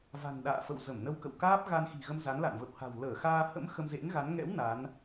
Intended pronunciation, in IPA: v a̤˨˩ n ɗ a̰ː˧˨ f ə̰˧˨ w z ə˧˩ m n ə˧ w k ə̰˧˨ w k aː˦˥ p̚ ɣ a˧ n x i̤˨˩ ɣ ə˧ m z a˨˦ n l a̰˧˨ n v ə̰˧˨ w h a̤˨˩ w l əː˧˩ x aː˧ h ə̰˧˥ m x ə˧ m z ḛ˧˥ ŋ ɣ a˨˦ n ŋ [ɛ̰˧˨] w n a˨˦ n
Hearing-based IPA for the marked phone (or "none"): ɛ̰˧˥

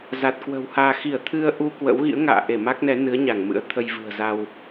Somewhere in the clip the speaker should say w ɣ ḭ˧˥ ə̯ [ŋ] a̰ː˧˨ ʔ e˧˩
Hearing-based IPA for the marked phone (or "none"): ŋ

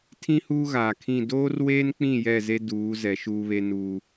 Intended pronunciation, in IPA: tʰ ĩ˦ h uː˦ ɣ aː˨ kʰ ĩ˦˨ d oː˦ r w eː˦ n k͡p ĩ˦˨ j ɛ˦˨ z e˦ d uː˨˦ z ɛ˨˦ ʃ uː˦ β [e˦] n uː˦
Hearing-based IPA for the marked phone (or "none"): e˦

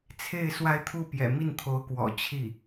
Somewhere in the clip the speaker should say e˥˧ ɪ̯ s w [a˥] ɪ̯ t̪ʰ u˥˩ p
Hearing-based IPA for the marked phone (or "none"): a˥˧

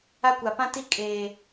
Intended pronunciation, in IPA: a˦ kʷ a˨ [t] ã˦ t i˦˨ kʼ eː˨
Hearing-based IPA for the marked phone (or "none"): p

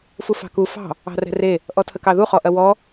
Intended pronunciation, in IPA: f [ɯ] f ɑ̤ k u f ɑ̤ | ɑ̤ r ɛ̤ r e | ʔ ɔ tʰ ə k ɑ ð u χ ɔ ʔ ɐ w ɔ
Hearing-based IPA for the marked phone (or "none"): u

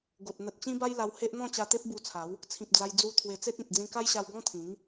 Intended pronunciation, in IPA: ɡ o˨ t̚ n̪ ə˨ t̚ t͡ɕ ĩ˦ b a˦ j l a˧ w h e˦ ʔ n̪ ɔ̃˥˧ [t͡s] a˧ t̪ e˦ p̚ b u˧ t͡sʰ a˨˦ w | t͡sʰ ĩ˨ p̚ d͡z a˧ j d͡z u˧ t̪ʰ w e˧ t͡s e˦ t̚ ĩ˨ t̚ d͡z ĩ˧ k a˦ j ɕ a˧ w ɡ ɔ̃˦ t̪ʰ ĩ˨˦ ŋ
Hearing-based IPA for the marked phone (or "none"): t͡ɕ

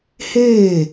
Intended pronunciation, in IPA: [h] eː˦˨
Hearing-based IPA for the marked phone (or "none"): h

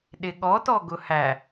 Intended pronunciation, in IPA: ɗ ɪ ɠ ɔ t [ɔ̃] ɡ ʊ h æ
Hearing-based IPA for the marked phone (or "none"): ɔ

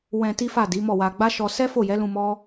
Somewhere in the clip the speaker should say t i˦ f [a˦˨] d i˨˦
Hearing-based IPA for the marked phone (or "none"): a˦˨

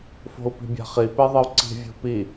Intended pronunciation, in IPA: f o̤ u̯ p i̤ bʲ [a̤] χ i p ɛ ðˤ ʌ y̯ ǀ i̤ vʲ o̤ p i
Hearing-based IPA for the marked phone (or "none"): a̤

